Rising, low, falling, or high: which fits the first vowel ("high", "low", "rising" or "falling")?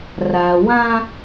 low